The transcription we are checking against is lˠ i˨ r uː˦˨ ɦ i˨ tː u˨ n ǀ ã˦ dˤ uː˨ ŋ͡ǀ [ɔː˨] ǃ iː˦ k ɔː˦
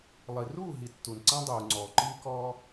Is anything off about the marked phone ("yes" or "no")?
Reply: no